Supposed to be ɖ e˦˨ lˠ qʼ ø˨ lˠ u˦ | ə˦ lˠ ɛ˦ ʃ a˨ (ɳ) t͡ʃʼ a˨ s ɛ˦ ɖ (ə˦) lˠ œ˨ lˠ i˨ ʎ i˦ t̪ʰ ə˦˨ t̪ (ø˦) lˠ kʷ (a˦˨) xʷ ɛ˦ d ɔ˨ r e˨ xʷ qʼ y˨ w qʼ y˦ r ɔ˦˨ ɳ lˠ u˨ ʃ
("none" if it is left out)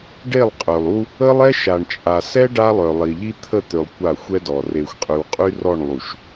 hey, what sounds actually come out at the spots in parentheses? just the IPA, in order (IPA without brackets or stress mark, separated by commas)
ɳ, a˦, ø˨, a˦˨